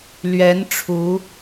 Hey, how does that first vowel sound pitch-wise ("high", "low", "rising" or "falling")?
rising